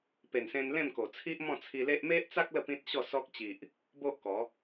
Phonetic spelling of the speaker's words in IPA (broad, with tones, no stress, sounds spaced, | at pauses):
p e˨˩ n s ẽ˧ n l ẽ˥˧ m k o˨˩ t͡sʰ i˦ ʔ m ɔ̃˥˧ t͡sʰ i˧ l e˦ ʔ m e˦ ʔ t͡s a˦ k̚ l ə˥˧ p ĩ˦ t̚ ɕ ɔ˥˧ s ɔ˦ k̚ t͡ɕ i˨ ʔ | b o˦ ʔ k ɔ˨˦